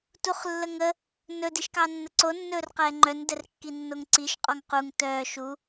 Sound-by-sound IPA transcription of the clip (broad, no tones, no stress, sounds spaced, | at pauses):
t u χ lː ə ŋ ə | n ɵ d i ʃ k ɑ nː ə ǀ o nː ɵː r q ɛː ŋ͡ǃ œ n d ɛ r kː i nː o ŋ ǀ i ʃ qʼ ɔ ŋ q u ŋ t œː ʃ u